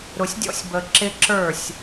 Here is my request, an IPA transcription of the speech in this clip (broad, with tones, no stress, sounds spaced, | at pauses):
ɾ ʊ˨ sʲ dʲ ɔ̰˦ sʲ b ə˨ ǁ ɪ˦ ǁ ə˞˦˨ sʲ